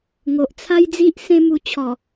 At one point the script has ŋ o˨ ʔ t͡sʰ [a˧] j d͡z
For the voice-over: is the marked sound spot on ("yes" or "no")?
no